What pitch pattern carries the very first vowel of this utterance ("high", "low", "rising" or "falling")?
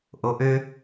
high